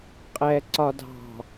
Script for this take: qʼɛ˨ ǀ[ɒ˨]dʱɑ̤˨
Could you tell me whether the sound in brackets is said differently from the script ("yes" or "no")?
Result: no